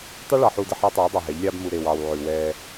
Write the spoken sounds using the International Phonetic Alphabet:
tˤ u˦ ɭ ɑ˨ ħ u˨ d ə˨ ħ ɑ˦ tˤ eː˨˦ dˤ ɑ˨ ɦ ɛ˨˦ ʎ lʲ ɑː˦ b m u˨ ɾ eː˨ w ɑː˨ w ʕ ʉ˨ w ɛː˦

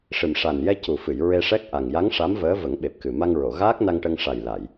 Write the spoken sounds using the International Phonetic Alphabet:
ʂ ɨ˨˩ m ʂ a˨˩ n j ɛ˧ c u˨˩ f ɨ˨˩˨ j ɹ e˧ ʂ ɛ˦˥ k̚ ʔ a˨˩ ŋ j a˧˥ ŋ ʂ a˧˥ m v əː˧˥ v ə˨˩˦ ŋ ɓ e˨˩ p̚ k ɨ˨˩ m a˧ ŋ ɹ o˨˩˨ ɣ aː˦˥ k̚ n a˧ ŋ ʈ ə˧ ŋ ʂ a˨˩ j l a˨˩˨ j

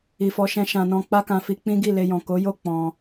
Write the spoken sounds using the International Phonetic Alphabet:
i˨ f ɔ˨˦ ʃ ɛ̃˧ ʃ ã˧ n ɔ̃˧ k͡p a˦ k ã˧ f i˧ k͡p ĩ˦ ɡ i˦˨ l e˧ j ɔ̃˨ k o˨˦ j o˦˨ k͡p ɔ̃˧

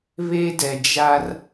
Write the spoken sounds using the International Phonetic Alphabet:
β e˦ d ɛ˨ d͡ʒ a˦ r

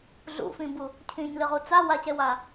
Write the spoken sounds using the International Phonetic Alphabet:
ɮ ṵ f ĩ b u | cʰ ĩ ɲ l ɨ ʁ u t͡s a w a c e w a

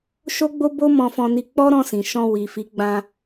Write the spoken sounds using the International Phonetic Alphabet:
ʃ o˦ ɡ͡b o˦ b o˦ m ɔ̃˧ f ɔ̃˧ n i˧ k͡p ɔ˦ ɾ ɔ̃˧ s ĩ˨ ʃ ɔ̃˧ w i˨ f i˨˦ ɡ͡b ã˧

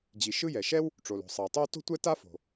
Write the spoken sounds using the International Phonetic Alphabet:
d͡ʑ i˩ ʃ ɯ˥ j ɛ˩ ʃ ɛ˥ w | ʈ͡ʂ o˩ l o̤˩ sˤ ɯ˩ ɪ̯ tˤ o˥ w t o̤˥ tʷ ɛ˥ t a˥ f o̤˩

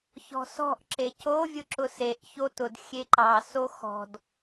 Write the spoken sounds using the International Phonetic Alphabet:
ç ɔ̤ s ɔ̤ ʔ ǁ e c o vʲ ʊ ǁ ʊ s e ʔ ç o t ʊ d xʲ e ǃ ɑ s o x ɔ̤ d

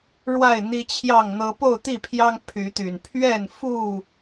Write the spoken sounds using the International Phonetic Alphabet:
ɻ w a˥˨ ɪ̯ n̪ i˦ t͡ɕʰ j ɑ˥˨ ŋ n̪ ɤ˦ p o˥˨ ʊ̯ t̪ i˥˨ pʰ j ɑ˦ ŋ pʰ y˨˦ t̪ y˨˩ n pʰ ɥ ɛ˥˨ n f u˥˨

